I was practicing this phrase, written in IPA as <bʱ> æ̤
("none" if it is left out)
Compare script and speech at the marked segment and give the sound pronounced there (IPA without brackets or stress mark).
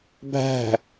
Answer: bʱ